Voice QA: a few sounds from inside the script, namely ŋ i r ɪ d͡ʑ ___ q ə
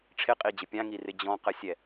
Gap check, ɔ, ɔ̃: ɔ̃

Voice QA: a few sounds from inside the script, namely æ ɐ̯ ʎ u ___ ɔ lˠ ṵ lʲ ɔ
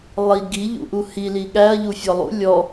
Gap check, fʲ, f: fʲ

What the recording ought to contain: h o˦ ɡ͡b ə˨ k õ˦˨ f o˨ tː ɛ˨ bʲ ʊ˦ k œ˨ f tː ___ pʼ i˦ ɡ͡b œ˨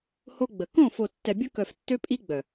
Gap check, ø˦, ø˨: ø˦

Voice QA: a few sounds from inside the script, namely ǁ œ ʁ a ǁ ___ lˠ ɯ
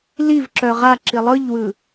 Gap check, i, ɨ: i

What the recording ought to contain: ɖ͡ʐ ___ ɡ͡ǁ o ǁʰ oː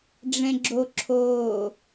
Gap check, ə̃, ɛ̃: ɛ̃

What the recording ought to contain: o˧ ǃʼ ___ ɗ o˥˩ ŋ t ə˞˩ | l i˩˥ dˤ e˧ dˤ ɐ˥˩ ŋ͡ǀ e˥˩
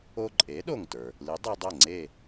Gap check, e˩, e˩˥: e˩˥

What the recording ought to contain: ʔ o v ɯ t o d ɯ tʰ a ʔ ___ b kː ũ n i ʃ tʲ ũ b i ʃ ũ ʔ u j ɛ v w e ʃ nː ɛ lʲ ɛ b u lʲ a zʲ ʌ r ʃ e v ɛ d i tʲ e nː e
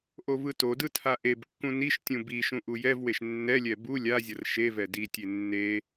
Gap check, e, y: e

